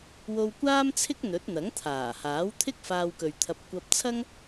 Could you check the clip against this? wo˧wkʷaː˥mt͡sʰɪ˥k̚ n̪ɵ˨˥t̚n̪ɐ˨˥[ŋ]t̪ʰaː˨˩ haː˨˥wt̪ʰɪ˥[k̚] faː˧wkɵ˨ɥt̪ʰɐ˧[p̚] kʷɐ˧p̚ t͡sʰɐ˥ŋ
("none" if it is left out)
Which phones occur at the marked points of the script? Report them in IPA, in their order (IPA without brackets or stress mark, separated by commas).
ŋ, k̚, p̚